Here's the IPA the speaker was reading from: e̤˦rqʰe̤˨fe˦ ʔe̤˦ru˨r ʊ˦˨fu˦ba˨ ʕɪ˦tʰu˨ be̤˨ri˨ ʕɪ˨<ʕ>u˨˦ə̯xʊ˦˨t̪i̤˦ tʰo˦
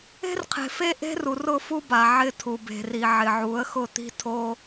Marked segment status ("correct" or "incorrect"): correct